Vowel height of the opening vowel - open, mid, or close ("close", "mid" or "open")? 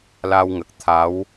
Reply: open